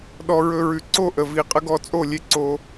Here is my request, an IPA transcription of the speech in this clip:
ɗ ɔ˧ ɹ ɵ˧ ɹ ʉ˨ ǀ o˦˨ ʔ ə˨ v i˨ qʼ ə˧ ɡ ɔ˧ t͡sʼ o˦˨ lʲ e˦ ǀ o˧

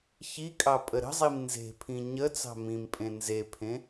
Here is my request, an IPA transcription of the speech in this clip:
ç i kʼ ɑ pʼ ə ɾ ə̤ zˤ i m n z e̤ pʰ ĩ ɲ ə t͡s ɑ̤ m ĩ m pʼ ẽ n z e pʰ ẽ

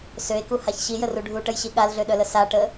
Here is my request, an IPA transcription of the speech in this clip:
s ø e̯ k u h a ç ɕ i j ə r u ɖʱ u ʈ ə j ɕ i ɠ a l ɮ ø ɗ œ l ə s a ʈ ə

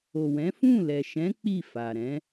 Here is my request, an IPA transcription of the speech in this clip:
o˨ w ɛ̃˨˦ f ũ˦˨ l ɛ˨ ʃ ɛ̃˨˦ k͡p i˦˨ f a˨ ɾ ɛ̃˨˦

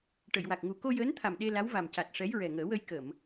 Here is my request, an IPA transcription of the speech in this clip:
ʈ ə˨˩˨ j w a˨˩ k̚ ŋ u˨˩ k o˧ j əː˧˥ n t̪ʰ a˨˩ m ɗ e˧ l a˧˥ w v a˨˩ m c a˨˩ t̚ ʂ ɛ˧˥ j ɹ ɛ˨˩ ŋ əː˨˩˦ w ə˧ j k ə˨˩˨ m

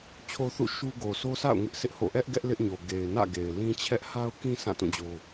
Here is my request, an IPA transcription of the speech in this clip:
t͡ɕʰ o˦ θ ṵ˦˨ ʃ u˦ ɡ o˨ sʰ o˦ s a̰˦˨ ʊ̯ ŋ ɪ˦ ʔ sʰ ɪ˦ ʔ h o̰˦˨ ʔ ɛ˦ ʔ ɡ ɛ˦ ʔ l ɪ˦ ʔ ɲ o˨ ɡ e˨ ɪ̯ n ä̰˦˨ ɡ e˨ ɪ̯ l ĩ˦ t͡ɕʰ ɛ˦ ʔ h a˦ ʊ̯ k ĩ˦ s ã˦˨ t ũ˦˨ d͡ʑ o˦

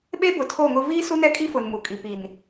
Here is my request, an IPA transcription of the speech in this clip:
ɓ e˦ b ʊ˨ tʰ o˦˨ ŋ ʊ˦ v iː˦ s u˦ n ɛ˦ kʼ i˦ f ʊ˨ n m u˨ kʼ i˨ p i˨ n

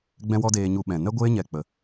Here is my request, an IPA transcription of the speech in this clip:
ɡ͡b ɛ̃˦ w ɔ˦ d eː˦ ɲ u˦ ɓ ɛ̃˧ n ɛ˦ ɡʷ eː˦ ɲ ɛ˧ k͡p ə˨˦

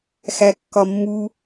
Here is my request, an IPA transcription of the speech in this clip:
x æ kː ɒ mː u

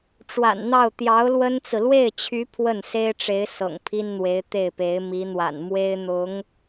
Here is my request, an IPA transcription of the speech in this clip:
ʈ͡ʂ w a̰˨˩ n n̪ ɑ˥˩ ʊ̯ t̪ j ɑ˧˥ ʊ̯ l w ə˥ n t͡s ɹ̩˨ l w e˥˩ ɪ̯ t͡ɕʰ y˧˥ pʰ w ə˥˩ n s e˥ ɪ̯ ʈ͡ʂ e˧˥ ɪ̯ s ɤ̰˨˩ ŋ pʰ i˥ n n̪ w e˧˥ ɪ̯ t̪ e˥˩ ɪ̯ p e˧˥ ɪ̯ m i˧˥ n̪ w a̰˨˩ n m w e˥ ɪ̯ n̪ ʊ˧˥ ŋ

